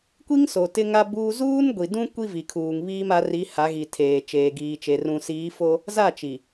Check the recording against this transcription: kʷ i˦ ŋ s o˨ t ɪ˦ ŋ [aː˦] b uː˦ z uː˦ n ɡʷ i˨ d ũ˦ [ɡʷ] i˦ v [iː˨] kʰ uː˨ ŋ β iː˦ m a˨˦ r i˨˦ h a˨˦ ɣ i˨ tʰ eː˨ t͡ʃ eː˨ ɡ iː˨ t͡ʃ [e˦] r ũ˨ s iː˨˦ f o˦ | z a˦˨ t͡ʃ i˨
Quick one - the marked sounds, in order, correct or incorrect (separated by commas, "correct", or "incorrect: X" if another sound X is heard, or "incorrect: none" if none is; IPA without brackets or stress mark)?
incorrect: a˦, incorrect: kʷ, incorrect: i˨, incorrect: e˨